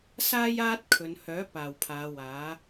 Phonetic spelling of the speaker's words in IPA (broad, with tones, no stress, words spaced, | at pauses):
saː˧jaː˧t̚ kʰɵ˨˧n hœː˨˥ paː˨˩wpʰaː˨˧ waː˨˥